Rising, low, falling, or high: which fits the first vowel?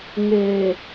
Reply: low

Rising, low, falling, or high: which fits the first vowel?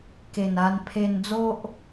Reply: low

